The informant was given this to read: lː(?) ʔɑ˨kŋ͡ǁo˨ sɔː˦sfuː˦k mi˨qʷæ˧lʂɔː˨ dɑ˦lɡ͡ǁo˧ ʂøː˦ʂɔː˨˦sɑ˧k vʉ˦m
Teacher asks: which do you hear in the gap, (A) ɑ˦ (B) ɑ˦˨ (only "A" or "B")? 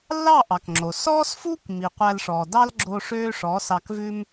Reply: B